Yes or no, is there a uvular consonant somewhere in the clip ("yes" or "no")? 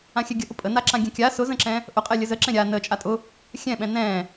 yes